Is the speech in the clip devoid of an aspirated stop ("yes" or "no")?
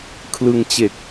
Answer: no